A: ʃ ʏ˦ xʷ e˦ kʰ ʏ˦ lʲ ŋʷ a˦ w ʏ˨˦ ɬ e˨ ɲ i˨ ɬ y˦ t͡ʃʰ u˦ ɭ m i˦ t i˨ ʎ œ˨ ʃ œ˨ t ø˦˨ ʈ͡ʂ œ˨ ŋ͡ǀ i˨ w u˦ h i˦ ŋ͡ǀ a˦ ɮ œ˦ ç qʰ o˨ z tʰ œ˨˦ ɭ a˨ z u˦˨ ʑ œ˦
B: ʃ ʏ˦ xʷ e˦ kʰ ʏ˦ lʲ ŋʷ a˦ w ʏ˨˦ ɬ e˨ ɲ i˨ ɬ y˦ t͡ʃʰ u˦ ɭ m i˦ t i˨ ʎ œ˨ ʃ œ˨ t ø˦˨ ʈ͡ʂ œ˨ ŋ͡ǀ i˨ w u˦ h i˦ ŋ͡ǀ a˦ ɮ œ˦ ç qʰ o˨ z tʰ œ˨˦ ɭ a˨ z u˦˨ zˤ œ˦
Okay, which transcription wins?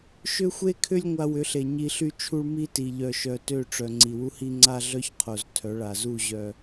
A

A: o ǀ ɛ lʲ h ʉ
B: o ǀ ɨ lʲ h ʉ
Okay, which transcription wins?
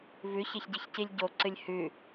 B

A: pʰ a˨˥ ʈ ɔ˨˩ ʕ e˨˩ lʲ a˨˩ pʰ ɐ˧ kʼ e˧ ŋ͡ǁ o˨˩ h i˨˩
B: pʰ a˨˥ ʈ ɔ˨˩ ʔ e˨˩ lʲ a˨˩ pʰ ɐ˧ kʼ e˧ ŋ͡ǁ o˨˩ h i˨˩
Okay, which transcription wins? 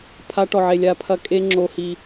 A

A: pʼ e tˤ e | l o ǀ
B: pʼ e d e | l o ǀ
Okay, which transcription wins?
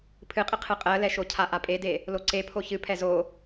B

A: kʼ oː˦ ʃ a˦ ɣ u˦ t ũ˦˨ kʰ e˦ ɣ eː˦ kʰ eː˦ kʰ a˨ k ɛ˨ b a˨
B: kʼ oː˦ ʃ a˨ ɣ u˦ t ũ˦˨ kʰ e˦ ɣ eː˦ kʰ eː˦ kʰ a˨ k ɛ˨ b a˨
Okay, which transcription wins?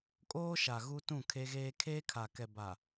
B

